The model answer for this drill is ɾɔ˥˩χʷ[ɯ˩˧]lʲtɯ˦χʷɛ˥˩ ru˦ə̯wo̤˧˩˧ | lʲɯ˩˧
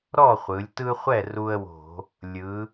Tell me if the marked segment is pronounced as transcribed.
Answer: yes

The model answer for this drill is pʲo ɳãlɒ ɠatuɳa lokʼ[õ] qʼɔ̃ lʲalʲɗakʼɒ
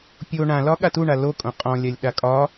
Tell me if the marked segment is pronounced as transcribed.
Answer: yes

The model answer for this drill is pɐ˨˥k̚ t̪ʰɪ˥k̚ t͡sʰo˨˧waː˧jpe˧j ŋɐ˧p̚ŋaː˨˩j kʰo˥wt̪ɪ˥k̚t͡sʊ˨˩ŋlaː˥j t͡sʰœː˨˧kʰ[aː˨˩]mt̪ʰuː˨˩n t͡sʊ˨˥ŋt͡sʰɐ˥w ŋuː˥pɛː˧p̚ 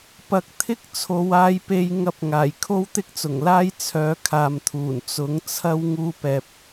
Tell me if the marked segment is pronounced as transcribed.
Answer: no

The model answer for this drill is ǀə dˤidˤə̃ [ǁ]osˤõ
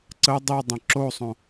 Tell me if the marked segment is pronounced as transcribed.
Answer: yes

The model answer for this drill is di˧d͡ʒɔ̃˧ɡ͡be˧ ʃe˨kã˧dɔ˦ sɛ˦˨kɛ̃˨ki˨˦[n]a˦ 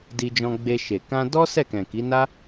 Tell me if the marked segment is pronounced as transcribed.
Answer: yes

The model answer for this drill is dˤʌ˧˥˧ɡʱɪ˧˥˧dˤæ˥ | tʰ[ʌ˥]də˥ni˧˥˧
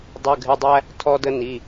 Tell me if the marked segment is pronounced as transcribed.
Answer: no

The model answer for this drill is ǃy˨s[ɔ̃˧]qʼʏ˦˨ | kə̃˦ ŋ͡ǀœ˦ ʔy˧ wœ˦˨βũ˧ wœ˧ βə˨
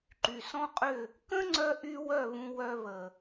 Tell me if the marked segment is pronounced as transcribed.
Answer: no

